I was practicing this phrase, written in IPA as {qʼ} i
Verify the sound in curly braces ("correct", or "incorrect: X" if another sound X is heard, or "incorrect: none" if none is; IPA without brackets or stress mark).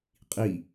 correct